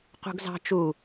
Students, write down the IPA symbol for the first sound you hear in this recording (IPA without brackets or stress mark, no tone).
q